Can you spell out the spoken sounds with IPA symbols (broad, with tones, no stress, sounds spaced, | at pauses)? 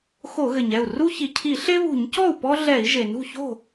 x o˧˩˧ ɣ ɘ˩ ɲ ɛ˥˩ u̯ r u˦ ç i˩ cʰ i˧˩˧ ɬ e˦ β ṳ˧˩˧ ɲ c ɔ˥˩ u̯ p ɔ˦ ɮ ɛ˧˩˧ i̯ ʒ e˩ n ṳ˥˩ ç o̤˥˩